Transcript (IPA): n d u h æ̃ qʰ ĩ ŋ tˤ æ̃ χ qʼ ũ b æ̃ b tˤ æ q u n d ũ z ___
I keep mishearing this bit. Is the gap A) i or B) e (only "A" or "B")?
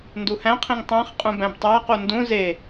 B